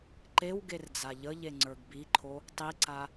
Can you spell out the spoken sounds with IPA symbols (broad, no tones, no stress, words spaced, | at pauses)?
ǃew ɡerd͡zaʎəʎe ŋ͡ǀə˞ɡbiǃʰo | tˤiǀa